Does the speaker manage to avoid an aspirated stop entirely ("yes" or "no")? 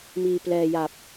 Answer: yes